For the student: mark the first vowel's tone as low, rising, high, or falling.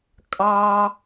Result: high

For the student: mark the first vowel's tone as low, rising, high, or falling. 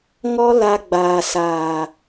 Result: high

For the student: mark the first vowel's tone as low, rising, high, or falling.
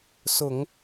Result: low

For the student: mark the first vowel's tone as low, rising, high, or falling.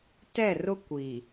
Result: falling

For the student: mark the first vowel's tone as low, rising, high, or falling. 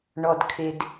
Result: low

